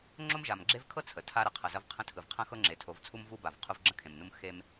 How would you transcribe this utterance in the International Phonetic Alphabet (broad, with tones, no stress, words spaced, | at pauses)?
ŋ͡ǁo˦mʒa˨mɡ͡ǁe˦vkʰɤ˦ t͡sʰə˨tʰa˦ ɾɐ˨qʰɐ˨ zɐ˦vqʰə̃˦ tʰɯ˨vqʰɐ̃˦xɤ˦ ŋ͡ǁe˨tʰo˨˦vt͡sʰu˦m vu˦ba˨v qʰu˦vɡ͡ǁə̃˦ kʰẽ˨mnu˦m xe˦m